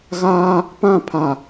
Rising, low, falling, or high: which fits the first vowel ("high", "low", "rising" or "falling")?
high